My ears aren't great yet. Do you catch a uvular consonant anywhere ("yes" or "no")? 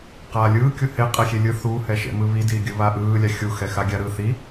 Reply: yes